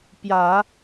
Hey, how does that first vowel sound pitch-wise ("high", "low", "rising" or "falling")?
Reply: low